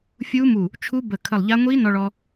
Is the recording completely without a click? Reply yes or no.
yes